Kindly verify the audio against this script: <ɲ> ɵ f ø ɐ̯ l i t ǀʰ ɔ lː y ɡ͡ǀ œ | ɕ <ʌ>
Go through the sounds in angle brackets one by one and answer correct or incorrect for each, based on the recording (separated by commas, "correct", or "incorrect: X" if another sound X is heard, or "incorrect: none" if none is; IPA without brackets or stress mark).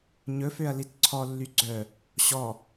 correct, incorrect: ɔ